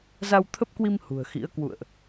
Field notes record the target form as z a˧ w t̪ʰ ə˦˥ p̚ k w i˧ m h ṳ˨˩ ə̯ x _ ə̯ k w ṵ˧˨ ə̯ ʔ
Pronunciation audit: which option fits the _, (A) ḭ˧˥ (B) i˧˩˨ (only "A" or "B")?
A